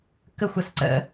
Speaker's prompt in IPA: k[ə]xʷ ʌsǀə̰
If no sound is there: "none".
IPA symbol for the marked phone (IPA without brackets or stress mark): ə